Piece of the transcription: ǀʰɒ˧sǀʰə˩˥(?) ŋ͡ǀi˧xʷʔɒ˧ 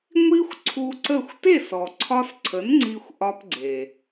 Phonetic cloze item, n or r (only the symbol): n